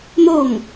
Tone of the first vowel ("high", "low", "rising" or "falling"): falling